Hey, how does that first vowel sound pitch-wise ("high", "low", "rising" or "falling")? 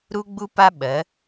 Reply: high